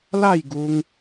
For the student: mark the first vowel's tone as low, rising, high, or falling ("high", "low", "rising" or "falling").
falling